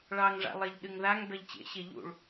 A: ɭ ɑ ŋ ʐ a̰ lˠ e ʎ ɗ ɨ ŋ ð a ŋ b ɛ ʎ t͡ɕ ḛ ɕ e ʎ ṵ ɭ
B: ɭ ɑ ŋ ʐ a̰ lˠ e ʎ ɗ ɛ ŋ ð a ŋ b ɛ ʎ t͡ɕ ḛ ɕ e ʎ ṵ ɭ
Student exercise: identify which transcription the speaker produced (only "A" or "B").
A